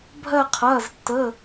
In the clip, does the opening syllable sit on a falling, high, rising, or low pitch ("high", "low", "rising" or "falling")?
falling